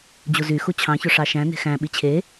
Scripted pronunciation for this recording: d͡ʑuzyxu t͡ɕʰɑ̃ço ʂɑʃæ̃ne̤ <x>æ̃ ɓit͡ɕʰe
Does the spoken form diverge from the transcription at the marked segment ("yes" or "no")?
no